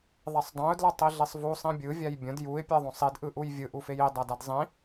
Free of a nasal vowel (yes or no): no